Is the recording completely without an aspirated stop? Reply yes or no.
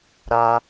yes